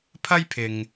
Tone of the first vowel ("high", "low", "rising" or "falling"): high